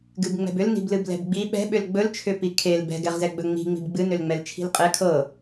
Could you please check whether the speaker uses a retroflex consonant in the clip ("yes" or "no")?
no